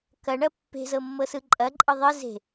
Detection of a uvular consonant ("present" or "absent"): absent